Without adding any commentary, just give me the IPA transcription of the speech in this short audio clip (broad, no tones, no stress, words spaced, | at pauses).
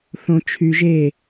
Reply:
θõ t͡ʃʰy ʒe